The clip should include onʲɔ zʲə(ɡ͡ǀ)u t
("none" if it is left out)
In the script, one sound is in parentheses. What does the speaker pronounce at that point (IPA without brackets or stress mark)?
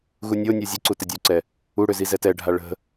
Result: ǀ